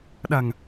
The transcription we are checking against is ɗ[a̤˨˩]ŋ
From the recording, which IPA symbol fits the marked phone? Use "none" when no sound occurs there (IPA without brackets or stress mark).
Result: a̤˨˩